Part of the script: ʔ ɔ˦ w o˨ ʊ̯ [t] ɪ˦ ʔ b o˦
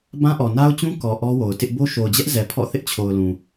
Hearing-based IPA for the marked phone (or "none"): t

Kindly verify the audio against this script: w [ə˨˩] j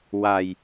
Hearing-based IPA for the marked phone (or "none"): a˨˩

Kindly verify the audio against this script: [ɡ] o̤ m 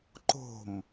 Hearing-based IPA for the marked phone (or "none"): ǃ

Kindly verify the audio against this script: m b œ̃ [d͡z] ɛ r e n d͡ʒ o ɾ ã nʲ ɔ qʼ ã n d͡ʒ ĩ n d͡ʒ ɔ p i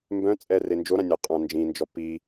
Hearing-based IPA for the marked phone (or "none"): t͡sʼ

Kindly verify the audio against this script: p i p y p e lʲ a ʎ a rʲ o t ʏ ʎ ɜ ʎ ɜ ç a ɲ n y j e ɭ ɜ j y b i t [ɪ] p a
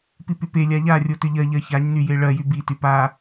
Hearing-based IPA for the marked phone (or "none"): y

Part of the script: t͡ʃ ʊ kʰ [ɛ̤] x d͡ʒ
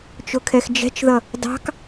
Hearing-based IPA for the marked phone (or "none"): ɛ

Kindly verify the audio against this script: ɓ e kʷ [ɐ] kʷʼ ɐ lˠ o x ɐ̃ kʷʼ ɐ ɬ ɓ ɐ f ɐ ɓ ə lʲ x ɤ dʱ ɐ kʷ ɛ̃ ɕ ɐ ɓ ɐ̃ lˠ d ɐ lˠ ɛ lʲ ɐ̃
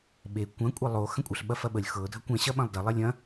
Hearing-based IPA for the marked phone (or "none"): ɐ̃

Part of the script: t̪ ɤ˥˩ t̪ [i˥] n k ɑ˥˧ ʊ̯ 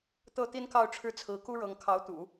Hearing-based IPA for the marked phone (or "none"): i˥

